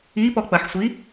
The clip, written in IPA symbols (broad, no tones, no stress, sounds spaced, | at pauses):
i p ɔ k͡p ɐ ħ sʷ i